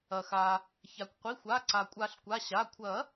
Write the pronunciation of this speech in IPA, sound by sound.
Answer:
ɐ˩ x a˩ | ç a˩ kʷ qʷ i˩˧˩ xʷ a˩˧˩ ǀ a˩ kʷʼ a˨˩˦ ɬ kʷ a˩˧˩ ɕ a˩˧˩ kʷʰ ɐ˨˩˦

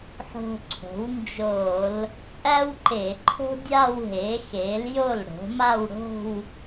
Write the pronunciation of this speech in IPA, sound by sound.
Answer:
ħ o̤˧ ǀʰ o̤˩˥ w n d͡ʒ o˧˩˧ l | t͡sʼ æ˥ w ǃ e˧˩˧ ǃʰ o̤˥ dʲ a˥˧ w ɦ e˩˥ x e˩˥ l j o˥˩ l ɽ o̤˩˥ m a˥˧ w ɽ o̤˥˧ w

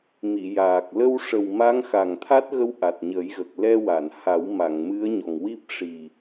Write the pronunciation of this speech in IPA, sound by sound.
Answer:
m i˨˩˨ j aː˨˩ k̚ l ə˧ w ʂ ə˨˩ w m a˧˥ ŋ x a˨˩ ŋ t̪ʰ a˦˥ t̚ ɣ ə˧˥ w ʔ a˨˩ t̚ ɲ ə˨˩˦ j ɣ ə˨˩ k̚ l ɛ˧ w a˨˩˨ n h a˨˩˦ w m a˨˩˨ ŋ m ɨ˧˥ ə̯ ɲ ɔ˨˩ ŋ w i˦˥ p̚ ʂ i˨˩

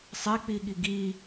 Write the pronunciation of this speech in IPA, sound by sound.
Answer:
sˤ e k͡p i ɠ i ɡ i

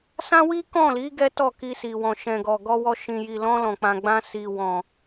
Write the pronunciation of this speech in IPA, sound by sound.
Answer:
s ã˦ w i˦ k ɔ̃˦˨ l i˨˦ ɡ ɛ˦ t ɔ˦˨ k i˧ s i˨ w ɔ̃˨ ʃ ɛ̃˨ ɡ ɔ˨ ɡ ɔ˧ w ɔ˧ ʃ ĩ˨ j i˨ l ɔ̃˧ l ɔ̃˨ k͡p ã˨ ɡ͡b ã˧ s i˨ w ɔ̃˨

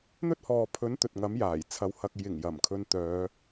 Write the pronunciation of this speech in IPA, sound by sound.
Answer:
n̪ ɵ˥ t̚ h ɔː˨ pʰ ɵ˨˥ n t̪ ɵ˨ t̚ ŋ ɐ˨˥ m j aː˨˩ j t͡sʰ ɐ˨˧ w h ɐ˨ k̚ j ɪ˨˩ ŋ j ɐ˨˩ m kʰ ɵ˧ n t̪ œː˨˧

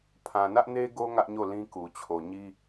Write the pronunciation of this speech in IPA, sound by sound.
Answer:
pʰ ã˨ n ä˦ ʔ n e˦ ɡ o˦ ŋ ä˦ ʔ ɲ o˦˨ l ĩ˦ k u˨ t͡ɕʰ o˨ ɲ i˦

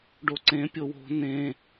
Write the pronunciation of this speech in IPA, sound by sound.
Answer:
ɖ o ǀ ẽ pʲ o w o̤ n ẽ

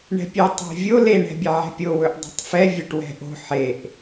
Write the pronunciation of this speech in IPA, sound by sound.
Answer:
ɳ ɛ̤ pʲ ɛ tˤ ɛ̤ vʲ o l e ɳ ɛ̤ bʲ ɛ ʕ ɛ̤ pʲ o w ɵ ʔ dˤ e̤ tˤ f ɛ vʲ o ʈ w ɛ̤ ʔ o̤ ħ e ʔ

